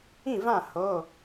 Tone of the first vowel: falling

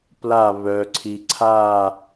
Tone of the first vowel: falling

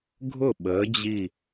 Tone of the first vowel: falling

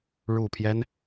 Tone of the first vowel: low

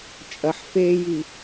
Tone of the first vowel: low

